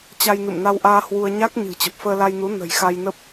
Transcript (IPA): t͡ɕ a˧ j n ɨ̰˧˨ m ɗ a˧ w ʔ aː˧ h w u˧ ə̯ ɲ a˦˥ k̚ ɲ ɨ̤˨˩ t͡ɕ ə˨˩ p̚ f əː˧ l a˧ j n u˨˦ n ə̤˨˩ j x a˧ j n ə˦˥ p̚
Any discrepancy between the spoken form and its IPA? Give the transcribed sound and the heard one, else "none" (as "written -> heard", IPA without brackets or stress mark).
ɗ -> n